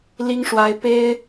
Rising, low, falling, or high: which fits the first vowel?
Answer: high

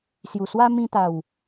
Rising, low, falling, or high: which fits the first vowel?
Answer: low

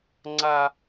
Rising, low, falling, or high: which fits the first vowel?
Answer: high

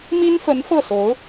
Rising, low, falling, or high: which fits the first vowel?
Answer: high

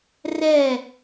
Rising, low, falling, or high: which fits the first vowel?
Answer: falling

